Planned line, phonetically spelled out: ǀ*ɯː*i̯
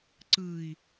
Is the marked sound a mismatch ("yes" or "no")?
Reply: no